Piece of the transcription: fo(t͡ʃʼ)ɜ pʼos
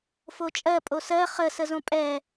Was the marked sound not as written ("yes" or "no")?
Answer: no